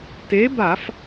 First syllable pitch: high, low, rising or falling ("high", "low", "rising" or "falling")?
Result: rising